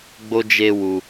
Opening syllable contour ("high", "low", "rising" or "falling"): high